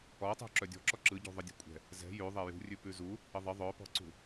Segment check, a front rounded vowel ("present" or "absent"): present